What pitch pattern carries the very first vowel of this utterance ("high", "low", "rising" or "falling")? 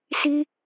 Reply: high